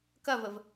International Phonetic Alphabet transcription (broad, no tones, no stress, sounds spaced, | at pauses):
k ɐ v ə v